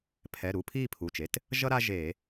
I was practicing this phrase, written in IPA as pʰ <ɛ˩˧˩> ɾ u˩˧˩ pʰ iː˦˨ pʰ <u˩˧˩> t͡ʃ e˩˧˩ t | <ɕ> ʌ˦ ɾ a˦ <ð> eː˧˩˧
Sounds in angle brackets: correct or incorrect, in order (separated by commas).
correct, correct, incorrect, incorrect